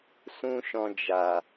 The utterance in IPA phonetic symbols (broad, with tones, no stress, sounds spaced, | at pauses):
s ũ˦ ʃ ɔ̃˧ d͡ʒ a˨